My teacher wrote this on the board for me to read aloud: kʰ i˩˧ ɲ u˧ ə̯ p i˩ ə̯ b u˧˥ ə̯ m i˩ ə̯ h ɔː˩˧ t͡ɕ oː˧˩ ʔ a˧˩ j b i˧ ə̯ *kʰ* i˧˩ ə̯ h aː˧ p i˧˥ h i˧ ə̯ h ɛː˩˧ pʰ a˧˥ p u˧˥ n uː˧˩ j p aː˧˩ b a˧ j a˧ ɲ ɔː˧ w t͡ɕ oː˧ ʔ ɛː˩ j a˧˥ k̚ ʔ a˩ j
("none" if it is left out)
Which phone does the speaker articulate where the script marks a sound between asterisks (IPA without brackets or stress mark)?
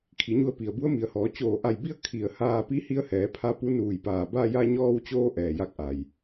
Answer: kʰ